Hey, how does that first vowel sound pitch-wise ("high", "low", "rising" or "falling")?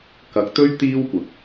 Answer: rising